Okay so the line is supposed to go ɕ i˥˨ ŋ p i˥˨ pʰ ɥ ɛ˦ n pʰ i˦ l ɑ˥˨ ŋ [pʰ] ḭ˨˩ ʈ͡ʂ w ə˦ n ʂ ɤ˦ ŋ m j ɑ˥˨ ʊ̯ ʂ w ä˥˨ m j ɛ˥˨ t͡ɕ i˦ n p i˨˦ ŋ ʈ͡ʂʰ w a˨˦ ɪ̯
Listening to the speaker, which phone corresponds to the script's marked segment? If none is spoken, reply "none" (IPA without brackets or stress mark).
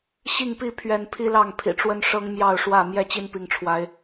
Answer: pʰ